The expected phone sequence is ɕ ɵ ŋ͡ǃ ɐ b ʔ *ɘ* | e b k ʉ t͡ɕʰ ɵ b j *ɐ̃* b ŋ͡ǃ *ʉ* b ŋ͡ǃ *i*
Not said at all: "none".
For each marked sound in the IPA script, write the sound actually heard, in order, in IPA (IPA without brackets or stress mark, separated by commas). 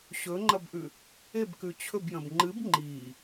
ʉ, ɐ̃, ɨ, iː